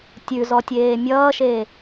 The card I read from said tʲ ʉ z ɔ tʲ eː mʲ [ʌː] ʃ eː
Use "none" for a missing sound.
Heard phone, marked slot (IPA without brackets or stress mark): ʌː